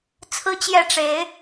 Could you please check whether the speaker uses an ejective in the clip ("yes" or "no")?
no